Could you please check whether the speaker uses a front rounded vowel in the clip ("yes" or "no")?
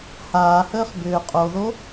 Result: yes